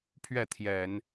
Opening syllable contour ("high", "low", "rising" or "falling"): falling